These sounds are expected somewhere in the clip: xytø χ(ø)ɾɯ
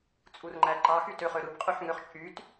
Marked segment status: correct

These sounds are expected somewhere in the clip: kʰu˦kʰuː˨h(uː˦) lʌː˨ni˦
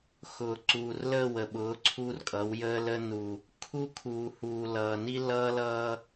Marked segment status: incorrect: uː˨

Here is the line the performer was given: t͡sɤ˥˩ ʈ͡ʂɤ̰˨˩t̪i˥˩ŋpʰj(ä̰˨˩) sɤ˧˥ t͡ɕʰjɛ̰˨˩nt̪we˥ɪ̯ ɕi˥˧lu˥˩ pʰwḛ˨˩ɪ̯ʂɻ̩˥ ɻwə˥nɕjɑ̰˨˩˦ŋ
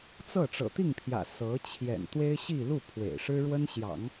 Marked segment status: correct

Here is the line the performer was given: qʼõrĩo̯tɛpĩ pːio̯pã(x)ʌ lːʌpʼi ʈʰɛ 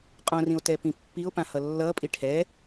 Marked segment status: incorrect: h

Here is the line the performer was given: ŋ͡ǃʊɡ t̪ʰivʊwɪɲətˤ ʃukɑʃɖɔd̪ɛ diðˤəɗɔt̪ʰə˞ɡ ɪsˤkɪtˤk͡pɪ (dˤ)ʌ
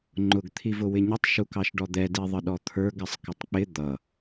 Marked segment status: incorrect: d̪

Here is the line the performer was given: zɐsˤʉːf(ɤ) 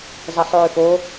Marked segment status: incorrect: o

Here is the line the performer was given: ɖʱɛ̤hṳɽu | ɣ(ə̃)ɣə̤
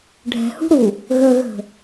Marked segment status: incorrect: ə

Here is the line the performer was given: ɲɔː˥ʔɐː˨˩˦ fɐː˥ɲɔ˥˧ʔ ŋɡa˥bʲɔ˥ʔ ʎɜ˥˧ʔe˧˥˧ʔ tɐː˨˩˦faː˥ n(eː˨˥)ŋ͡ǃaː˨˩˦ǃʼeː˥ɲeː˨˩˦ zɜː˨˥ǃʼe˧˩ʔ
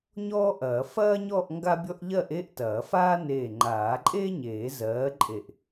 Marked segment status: incorrect: eː˧˩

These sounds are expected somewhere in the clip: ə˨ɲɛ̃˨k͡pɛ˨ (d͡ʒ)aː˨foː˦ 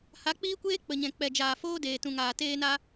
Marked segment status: correct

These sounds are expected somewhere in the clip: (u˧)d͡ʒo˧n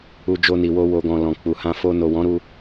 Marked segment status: correct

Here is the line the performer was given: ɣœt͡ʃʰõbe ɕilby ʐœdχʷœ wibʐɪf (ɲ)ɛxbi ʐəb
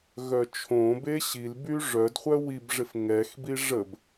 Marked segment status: incorrect: ŋ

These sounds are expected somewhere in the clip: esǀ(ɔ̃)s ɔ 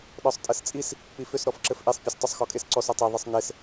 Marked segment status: incorrect: ɔ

